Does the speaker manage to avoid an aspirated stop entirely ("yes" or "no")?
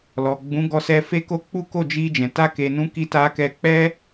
yes